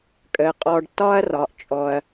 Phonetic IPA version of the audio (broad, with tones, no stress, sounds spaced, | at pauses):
kʼ əː˩ qʼ ɔː˨ ɖ tː ɒː˥ ɐ̯ r ɒː˩ ʔ t͡ʃʼ ɔ˩ ɐ̯